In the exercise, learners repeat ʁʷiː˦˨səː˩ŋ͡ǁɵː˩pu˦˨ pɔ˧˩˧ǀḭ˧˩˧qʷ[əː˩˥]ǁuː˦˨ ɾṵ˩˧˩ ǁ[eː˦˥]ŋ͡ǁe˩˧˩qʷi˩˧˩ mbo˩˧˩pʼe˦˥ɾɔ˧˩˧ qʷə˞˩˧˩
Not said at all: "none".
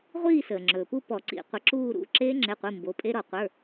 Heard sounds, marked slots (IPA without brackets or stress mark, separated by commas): ə˩˥, eː˦˥